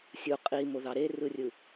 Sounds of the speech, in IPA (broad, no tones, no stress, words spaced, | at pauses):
sʲu qʼimoðɑ ɾerɯrʲɯ